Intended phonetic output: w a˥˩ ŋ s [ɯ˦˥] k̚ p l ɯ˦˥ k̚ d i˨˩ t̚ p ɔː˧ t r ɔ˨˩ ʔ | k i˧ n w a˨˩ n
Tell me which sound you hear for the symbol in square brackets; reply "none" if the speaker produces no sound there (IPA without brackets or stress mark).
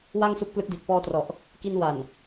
u˦˥